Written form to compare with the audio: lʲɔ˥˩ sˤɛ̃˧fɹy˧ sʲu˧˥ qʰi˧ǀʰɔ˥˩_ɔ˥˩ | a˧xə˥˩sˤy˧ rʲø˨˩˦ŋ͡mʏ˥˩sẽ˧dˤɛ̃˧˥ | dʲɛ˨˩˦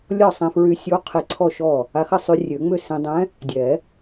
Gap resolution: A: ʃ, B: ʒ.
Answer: A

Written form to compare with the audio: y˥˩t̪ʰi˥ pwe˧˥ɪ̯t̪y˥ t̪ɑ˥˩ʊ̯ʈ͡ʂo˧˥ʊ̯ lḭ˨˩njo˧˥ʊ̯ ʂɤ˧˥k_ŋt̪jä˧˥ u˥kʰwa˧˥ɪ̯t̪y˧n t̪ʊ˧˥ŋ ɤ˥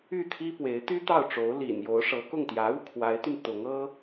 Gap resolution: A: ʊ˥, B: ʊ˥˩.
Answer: B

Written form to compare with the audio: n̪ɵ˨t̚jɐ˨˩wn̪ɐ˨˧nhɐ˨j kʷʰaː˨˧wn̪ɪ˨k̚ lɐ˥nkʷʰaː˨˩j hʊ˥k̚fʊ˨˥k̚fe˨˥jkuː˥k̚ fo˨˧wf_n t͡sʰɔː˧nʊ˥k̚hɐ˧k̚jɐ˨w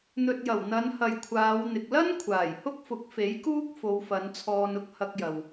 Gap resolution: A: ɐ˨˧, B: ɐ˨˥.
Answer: A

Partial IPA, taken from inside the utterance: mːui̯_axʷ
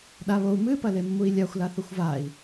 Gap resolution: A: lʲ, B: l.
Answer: A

